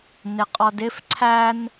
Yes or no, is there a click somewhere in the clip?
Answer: yes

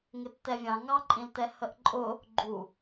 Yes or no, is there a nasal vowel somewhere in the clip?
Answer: yes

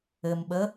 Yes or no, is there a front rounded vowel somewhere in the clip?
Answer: no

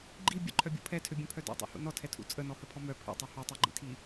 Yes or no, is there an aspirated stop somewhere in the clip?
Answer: yes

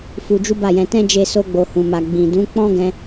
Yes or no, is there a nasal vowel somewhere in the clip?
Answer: yes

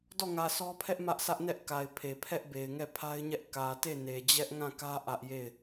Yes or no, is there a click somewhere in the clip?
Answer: no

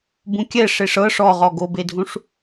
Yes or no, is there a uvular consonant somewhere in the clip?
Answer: yes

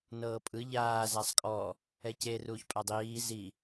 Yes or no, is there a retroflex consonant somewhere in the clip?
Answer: no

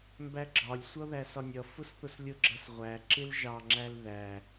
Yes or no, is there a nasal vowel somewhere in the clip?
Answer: no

